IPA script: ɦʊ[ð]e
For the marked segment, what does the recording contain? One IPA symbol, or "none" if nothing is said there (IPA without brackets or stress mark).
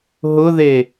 ð